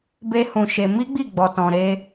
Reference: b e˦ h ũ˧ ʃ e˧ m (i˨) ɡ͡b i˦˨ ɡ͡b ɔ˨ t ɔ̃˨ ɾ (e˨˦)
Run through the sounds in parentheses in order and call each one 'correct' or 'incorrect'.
incorrect: i˦, incorrect: e˧

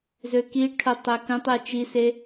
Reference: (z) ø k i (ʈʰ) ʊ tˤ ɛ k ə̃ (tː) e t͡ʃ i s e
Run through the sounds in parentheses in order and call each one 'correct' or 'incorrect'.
correct, correct, incorrect: tˤ

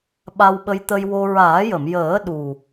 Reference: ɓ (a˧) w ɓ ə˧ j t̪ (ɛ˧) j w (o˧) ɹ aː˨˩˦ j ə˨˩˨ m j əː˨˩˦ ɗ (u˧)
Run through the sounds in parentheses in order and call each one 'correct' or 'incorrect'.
correct, incorrect: ə˧, correct, incorrect: u˨˩

